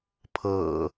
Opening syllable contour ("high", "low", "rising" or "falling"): low